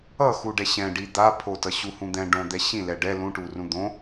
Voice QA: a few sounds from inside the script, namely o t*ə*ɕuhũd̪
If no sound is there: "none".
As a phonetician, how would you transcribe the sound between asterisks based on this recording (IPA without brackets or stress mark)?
ʌ